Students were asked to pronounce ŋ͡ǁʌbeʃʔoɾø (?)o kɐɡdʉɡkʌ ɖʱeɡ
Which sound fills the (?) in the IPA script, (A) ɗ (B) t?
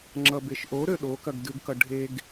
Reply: A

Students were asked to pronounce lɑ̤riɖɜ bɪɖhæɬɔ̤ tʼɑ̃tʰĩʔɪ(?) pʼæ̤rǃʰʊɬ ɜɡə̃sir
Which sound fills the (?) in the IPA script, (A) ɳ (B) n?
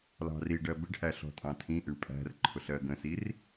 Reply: A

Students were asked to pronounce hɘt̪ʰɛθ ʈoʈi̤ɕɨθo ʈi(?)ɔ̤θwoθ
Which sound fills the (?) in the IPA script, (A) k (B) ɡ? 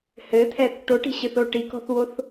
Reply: A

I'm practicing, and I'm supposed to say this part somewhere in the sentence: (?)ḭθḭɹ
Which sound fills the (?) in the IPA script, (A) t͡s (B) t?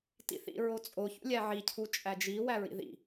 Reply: B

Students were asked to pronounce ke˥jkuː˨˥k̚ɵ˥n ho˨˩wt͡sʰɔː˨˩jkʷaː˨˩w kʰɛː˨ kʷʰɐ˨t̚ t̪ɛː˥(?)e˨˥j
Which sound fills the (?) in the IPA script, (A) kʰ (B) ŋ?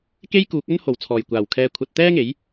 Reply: B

